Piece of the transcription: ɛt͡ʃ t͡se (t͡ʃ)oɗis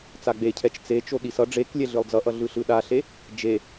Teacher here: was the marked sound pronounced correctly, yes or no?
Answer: yes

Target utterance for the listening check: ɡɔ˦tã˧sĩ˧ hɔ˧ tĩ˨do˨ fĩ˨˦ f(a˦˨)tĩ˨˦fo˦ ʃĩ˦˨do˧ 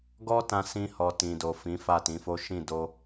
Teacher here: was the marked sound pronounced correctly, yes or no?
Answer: yes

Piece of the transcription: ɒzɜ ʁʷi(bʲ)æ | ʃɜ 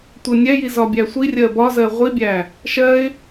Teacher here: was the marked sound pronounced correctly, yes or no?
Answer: yes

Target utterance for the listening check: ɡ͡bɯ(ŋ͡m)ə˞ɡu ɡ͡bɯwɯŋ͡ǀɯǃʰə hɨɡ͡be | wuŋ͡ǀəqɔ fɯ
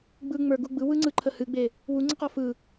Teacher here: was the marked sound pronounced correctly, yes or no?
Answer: yes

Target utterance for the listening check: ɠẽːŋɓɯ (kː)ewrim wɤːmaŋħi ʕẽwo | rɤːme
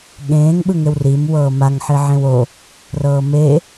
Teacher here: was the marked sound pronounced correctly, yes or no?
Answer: no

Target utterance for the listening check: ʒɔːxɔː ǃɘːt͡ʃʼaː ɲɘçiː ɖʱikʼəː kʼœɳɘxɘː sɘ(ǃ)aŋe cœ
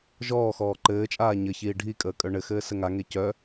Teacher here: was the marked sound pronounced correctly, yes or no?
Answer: no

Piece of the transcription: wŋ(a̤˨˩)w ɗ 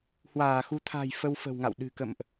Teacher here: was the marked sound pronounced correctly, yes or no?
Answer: no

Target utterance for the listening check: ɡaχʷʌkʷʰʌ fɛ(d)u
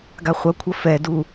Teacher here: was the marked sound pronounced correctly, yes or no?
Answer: yes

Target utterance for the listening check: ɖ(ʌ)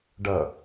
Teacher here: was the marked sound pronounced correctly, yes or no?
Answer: yes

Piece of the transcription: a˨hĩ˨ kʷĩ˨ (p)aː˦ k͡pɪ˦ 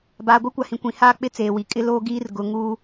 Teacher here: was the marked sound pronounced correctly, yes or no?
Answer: no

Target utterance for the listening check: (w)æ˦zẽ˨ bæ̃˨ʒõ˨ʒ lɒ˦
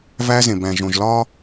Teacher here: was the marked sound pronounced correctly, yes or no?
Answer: no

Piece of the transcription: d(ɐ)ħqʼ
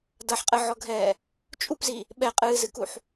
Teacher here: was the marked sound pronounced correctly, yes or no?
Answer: yes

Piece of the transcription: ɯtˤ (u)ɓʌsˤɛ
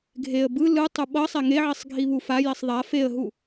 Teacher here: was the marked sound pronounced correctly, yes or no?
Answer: yes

